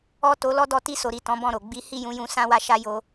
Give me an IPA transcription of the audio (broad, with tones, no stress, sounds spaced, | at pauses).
ɔ˦ t o˧ l ɔ˦ d ɔ˦˨ t i˧ s o˨ ɾ i˨ t ɔ̃˨˦ b ɔ̃˦˨ ɾ o˨ ɡ͡b i˨˦ h i˦˨ j ũ˨˦ j ũ˧ s ã˦ w a˦ ʃ a˦ j o˧